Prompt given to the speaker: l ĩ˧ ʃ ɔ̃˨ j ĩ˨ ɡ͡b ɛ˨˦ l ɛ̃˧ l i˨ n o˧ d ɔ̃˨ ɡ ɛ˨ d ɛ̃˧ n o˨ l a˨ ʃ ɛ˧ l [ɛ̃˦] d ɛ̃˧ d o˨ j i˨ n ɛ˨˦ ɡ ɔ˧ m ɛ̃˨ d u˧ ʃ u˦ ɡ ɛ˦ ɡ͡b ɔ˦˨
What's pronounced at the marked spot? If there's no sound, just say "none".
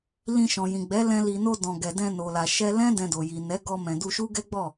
ɛ̃˦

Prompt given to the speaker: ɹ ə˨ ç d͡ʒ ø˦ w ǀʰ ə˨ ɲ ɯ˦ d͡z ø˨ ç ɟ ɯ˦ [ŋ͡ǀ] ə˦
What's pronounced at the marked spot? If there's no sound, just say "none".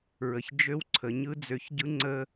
ŋ͡ǀ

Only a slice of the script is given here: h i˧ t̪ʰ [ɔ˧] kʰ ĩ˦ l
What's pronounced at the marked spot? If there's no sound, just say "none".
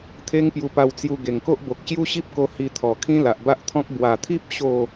ɔ˨˩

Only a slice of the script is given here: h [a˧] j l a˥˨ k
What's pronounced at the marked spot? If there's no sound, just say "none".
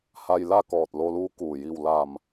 a˧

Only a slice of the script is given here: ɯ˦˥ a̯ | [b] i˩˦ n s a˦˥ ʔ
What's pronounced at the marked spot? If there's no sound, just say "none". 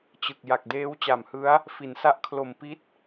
f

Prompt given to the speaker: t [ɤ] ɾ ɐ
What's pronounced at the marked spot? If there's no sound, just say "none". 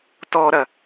ɔ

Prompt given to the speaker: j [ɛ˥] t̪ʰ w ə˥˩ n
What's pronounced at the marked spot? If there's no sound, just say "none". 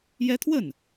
ɛ˥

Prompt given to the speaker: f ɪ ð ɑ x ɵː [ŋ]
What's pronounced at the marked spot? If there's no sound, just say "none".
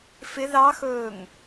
ŋ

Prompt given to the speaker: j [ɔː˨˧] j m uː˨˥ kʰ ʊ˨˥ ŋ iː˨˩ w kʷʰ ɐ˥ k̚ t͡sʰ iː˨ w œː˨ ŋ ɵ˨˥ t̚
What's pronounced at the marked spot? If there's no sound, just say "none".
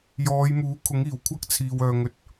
ɔː˨˧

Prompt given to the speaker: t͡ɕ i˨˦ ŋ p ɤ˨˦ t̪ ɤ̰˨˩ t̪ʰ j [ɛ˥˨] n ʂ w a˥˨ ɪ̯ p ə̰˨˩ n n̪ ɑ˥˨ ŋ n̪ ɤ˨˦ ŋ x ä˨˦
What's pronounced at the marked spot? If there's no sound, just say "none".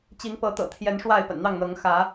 ɛ˨˦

